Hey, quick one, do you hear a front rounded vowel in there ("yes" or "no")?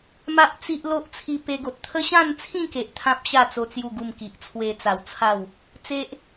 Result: no